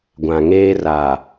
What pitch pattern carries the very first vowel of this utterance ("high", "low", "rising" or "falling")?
low